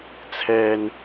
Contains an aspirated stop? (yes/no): yes